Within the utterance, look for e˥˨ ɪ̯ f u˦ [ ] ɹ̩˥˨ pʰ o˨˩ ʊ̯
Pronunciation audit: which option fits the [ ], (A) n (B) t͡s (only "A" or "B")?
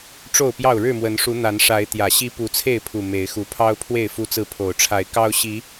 B